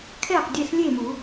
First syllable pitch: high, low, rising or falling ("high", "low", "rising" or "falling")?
falling